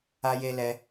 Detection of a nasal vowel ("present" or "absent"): absent